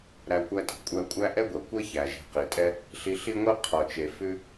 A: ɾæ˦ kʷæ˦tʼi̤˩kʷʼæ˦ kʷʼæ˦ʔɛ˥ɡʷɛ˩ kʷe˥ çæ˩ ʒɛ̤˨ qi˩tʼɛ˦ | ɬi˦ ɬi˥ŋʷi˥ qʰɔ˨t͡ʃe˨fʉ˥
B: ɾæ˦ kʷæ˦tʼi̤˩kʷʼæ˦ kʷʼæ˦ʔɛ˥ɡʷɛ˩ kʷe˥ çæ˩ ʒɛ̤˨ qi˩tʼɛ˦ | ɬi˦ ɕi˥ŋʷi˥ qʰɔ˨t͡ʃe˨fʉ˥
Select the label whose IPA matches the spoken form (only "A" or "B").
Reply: A